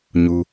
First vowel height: high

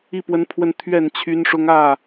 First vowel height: high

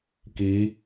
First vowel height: high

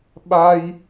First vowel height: low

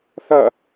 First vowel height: low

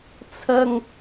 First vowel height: low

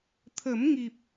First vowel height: mid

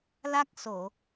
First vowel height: low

